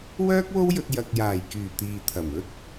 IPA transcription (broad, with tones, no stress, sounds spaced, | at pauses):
w œː˥ k̚ w o˥ w j ɵ˧ t̚ j ɐ˨ k̚ j aː˨˩ j k yː˨˩ t̪ iː˨ t̪ʰ ɐ˨˩ m ɵ˥ t̚